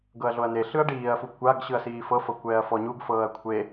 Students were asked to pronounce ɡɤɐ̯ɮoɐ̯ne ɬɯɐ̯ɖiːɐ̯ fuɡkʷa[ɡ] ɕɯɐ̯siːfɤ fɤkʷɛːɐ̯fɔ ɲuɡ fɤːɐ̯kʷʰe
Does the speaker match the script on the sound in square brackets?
yes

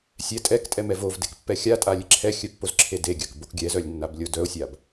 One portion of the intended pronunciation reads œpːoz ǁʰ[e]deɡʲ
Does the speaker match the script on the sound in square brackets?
yes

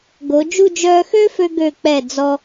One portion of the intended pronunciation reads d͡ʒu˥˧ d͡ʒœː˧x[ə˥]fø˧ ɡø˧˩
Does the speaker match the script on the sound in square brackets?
no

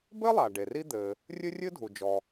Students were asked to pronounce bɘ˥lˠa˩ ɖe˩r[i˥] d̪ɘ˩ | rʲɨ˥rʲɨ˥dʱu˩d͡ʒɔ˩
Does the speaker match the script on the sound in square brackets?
yes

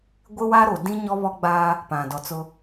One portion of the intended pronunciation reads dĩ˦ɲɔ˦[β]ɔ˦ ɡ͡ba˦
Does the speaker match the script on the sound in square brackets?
yes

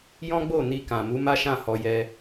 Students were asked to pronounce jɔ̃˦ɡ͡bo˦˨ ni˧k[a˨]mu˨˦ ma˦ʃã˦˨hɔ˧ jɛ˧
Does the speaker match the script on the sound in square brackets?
no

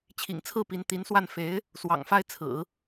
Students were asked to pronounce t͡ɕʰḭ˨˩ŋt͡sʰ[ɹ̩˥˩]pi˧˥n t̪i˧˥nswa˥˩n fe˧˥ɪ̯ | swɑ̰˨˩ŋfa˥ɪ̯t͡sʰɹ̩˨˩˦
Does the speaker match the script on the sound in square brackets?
yes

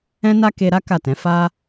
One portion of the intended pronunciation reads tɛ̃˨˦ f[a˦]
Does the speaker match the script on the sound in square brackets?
yes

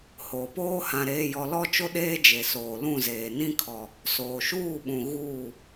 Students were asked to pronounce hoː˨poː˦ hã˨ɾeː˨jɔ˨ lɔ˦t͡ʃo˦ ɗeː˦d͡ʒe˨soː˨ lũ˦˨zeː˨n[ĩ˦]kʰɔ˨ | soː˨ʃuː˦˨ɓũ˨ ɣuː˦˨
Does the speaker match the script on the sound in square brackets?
yes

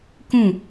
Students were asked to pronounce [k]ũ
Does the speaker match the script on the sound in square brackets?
yes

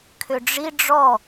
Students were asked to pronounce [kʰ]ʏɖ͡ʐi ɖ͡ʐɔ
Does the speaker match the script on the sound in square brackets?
yes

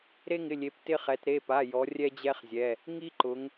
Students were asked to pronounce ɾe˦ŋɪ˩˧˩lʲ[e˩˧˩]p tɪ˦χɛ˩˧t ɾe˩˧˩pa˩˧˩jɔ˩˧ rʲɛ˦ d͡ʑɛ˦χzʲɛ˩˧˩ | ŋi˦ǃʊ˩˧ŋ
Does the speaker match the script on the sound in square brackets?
no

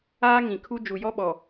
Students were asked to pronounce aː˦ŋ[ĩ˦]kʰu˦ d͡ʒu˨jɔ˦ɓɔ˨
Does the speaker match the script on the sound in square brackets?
no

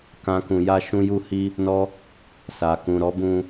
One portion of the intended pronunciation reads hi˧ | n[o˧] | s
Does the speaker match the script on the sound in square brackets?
no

